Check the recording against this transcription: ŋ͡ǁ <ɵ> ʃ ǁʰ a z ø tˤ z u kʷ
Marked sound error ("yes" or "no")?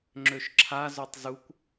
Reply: yes